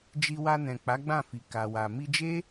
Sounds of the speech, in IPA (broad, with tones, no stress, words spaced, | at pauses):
d͡ʒi˧wa˧nɛ̃˨ k͡pa˨˦ɡ͡bã˦˨fi˨ ka˨wa˨ mi˧d͡ʒe˦